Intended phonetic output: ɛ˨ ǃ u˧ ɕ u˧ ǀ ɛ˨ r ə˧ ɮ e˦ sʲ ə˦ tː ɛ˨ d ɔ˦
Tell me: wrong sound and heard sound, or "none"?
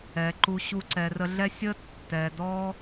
e˦ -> ɛ˦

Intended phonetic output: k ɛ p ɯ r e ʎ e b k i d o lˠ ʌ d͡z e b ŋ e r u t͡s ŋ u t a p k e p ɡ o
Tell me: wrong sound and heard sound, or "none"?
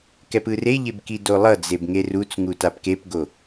none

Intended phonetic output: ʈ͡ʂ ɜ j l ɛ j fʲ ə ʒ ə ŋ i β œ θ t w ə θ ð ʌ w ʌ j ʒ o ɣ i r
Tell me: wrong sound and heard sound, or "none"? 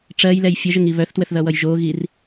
none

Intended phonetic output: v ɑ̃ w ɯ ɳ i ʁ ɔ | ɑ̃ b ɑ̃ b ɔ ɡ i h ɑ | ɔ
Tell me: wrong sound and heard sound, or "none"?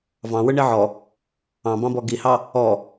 ʁ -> ʕ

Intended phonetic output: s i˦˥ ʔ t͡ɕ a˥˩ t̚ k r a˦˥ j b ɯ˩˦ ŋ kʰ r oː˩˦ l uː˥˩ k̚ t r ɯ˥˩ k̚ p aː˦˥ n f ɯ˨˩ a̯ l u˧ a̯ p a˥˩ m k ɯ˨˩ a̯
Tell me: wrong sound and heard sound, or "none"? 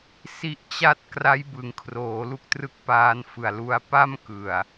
uː˥˩ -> u˥˩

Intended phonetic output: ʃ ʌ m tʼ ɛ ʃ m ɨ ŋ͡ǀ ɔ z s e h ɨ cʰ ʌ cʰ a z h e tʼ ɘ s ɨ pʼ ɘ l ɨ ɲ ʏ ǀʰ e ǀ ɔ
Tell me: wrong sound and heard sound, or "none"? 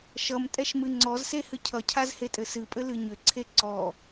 none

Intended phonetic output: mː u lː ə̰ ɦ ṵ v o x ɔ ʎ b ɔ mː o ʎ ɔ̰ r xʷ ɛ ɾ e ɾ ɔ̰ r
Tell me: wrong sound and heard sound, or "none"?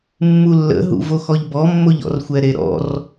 none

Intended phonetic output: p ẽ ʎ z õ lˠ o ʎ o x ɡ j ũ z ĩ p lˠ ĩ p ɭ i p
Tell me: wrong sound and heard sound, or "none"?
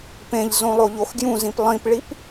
none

